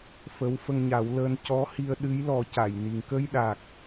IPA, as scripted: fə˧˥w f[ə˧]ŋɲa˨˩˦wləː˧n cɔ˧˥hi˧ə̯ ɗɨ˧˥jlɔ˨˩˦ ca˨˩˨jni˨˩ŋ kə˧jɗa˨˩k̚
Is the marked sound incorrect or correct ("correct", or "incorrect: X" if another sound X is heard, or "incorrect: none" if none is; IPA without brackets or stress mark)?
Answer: correct